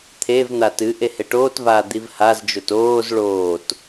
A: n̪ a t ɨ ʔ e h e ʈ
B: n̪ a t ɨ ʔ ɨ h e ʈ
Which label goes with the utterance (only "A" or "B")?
A